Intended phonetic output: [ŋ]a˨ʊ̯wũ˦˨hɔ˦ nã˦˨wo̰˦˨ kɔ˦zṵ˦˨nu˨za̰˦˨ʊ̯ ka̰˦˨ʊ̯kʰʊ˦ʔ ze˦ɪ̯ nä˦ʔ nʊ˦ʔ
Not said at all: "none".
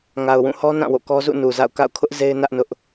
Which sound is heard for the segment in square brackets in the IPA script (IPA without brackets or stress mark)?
ŋ